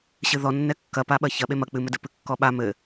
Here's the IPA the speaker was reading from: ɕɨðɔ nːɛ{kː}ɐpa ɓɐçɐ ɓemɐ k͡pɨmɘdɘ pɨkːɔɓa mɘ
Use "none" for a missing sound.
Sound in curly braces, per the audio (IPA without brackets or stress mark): kː